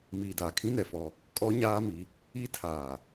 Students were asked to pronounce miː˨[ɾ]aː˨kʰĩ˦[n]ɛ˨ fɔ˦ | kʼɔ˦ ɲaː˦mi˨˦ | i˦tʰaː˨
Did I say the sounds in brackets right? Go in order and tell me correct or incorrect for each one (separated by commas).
incorrect, correct